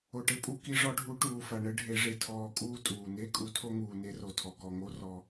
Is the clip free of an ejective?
no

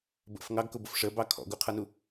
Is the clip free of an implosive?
yes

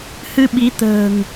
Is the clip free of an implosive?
no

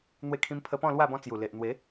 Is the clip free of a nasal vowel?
no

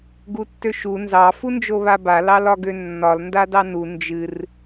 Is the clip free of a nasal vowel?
yes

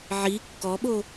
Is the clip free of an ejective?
yes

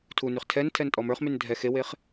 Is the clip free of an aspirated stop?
no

